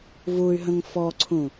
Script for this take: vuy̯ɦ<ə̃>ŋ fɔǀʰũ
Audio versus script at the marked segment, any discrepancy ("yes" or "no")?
no